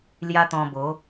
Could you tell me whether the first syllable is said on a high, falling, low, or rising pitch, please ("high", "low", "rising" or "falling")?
high